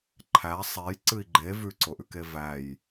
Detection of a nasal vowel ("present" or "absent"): absent